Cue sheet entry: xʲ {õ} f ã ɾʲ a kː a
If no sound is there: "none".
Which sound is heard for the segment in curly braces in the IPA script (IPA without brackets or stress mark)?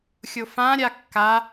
o